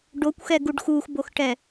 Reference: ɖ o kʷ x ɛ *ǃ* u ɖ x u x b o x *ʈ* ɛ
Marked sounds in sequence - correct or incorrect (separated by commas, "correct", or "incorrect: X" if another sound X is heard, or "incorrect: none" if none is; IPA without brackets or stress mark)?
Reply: incorrect: ɡ, correct